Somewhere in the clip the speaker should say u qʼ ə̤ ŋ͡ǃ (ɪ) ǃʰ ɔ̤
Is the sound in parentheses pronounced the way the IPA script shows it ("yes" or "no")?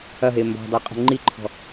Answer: no